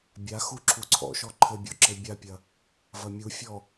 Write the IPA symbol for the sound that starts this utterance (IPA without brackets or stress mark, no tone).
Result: bʲ